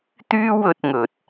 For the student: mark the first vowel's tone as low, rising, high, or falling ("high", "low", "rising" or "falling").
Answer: high